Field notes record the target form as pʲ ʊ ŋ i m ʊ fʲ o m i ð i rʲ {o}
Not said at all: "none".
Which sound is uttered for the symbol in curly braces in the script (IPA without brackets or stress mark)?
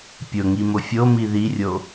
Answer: o